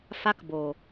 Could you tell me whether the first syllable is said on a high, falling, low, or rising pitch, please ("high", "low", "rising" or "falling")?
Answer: high